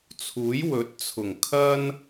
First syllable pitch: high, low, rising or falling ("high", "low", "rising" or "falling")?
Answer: rising